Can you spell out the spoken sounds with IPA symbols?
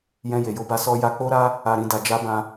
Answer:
jɛ̃˧je˨jo˧ba˧ sɔ˧ ja˧k͡po˦ɾa˦ | a˨ɾĩ˨da˨ d͡ʒa˧bã˧

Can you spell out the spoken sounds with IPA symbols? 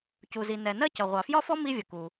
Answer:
cu˨zi˨nɛ˨ nɜ˥cʌ˨ ʁʷɑ˨fjɒ˥fɔ˥ mi˥vʲə˨ku˨

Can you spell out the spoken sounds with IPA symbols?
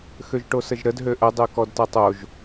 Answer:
xøʒʈosəʒɾəd ɦøʔə dˤøkɔdtɐtˤoʒ

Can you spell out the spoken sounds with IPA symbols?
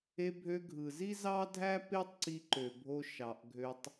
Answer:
e˧bʱø˧ ɡʱɯ˨zi˦ zɑ˦dʱæ˦ pe˦tˤǀi˧ ǃø˨bʱo˧ ʃɑ˨ʔɡʱø˧tˤ

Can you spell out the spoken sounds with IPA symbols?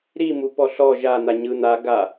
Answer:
ɾimu pɔɬɔ ʒan̪a ɲɯn̪a ɡa

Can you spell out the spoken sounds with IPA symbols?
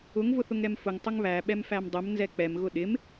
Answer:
ʊŋ vʊθʊŋɾɛmfʊŋ tˤʊŋβæ ɓɛmfæmdˤəm nzɛk͡pɛm ɣʊɗɪm

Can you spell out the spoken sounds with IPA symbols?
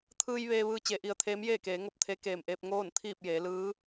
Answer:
t̪ʰɯː˧j ʋeː˧ʋɯː˧ t͡ɕe˩˧ʔi˩ə̯ t̪ʰeː˧˥mjeː˥˨keː˩˧ŋo˥˨p̚ t̪ʰe˧˥ keː˧˩mʔeː˧p̚ ŋoː˥˨nt̪ʰiː˥˨p̚jeː˩˧ lɯː˧˥

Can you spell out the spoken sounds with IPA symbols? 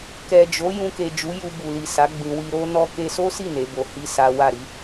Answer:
kɛ˨d͡ʒo˨˦ jũ˧ke˨d͡ʒu˨˦ ju˧ bu˨li˨sa˨˦ ɡ͡bĩ˧ wi˧ɾo˦ nɔ˧ke˧so˦si˦˨ ne˨˦bo˧ hi˦ sa˦ wa˦˨ɾi˨˦

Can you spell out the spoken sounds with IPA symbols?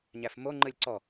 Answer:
ɲæfmo ŋ͡ǃɯlʲǀɔ

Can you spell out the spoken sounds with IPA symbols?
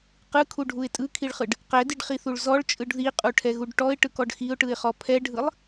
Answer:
qɯkʰuɖʱuɪ̯ tʼɯkʰiɭχɯɖ | qɛdiɖχiθuɭ zɔɭt͡ʃʼɯɖ ðiqʼuʈʰɛɣuɖ ʈɔɪ̯ʈɯkɔɖ xiʊ̯ʈɯɪ̯χɔ pʰɛɖʱɯlˠ

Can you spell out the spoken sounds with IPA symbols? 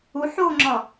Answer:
uħoːŋ͡ǁɒ

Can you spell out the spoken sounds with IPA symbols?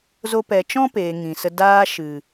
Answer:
zo˧pɛ˨t͡ʃɔ̃˦ peː˨ŋĩ˨ sə˧ daː˧ ʃɨ˨

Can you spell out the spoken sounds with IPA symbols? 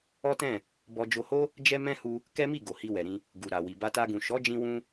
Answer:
ɔ˦tɛ̃˦˨ | bɔ˧d͡ʒo˧ho˦ | d͡ʒɛ˦ mɛ̃˦ hu˧ | kɛ˦mi˦˨ ɡo˨hi˧wɛ˨ɾĩ˧ | ɡu˨ ɾa˨wi˨ ba˧ta˧ɡũ˨ ʃɔ˨˦d͡ʒĩ˧wũ˧

